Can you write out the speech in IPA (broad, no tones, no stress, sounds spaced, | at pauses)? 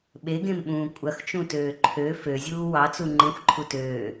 ɓ e ɡ ẽ m ɓ ũː kʷʼ ɐ x t͡ʃ ũ t øː ǃʰ ø f ø zʲ uː w ɑ t͡s u ŋ͡ǃ ẽ xʷ ǃʰ u t øː